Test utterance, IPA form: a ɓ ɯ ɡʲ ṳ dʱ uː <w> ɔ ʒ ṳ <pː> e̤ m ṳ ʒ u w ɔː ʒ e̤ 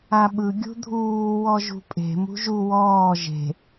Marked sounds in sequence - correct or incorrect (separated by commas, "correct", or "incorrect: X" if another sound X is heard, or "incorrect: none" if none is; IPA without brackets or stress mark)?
correct, incorrect: pʼ